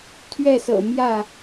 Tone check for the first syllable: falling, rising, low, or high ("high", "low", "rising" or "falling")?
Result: falling